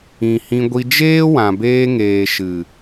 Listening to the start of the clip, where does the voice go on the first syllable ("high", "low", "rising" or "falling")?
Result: low